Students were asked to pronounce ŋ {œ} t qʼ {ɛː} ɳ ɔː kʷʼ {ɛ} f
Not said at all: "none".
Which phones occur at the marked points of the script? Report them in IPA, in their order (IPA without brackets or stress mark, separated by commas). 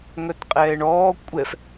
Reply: œ, ɛː, ɛ